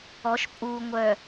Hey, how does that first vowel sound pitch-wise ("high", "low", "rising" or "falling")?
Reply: rising